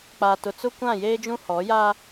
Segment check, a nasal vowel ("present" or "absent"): present